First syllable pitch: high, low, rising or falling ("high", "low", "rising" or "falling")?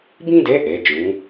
high